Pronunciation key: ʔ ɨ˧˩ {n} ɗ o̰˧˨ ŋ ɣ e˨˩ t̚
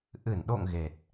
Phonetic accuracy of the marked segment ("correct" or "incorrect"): correct